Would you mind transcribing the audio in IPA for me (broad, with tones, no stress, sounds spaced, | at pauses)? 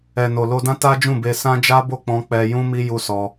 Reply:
ɛ˨ n o˨ l o˧ d ã˦ t a˦ d͡ʒ ũ˦˨ b e˧ s ã˦ d͡ʒ a˦ b o˦˨ k͡p ɔ̃˧ k͡p ɛ˧ j ũ˦ m i˦ j u˦ s ɔ˧